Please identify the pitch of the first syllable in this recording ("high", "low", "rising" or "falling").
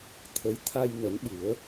rising